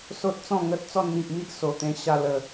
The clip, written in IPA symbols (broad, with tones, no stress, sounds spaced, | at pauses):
s o˦ t̚ t͡s ɔ̃˥˧ ŋ ə˦ t̚ t͡s ɔ˧ n n̪ i˨ ʔ m i˦ ʔ s o˨˩ t̪ ẽ˧ ɕ a˧ l ə˨˩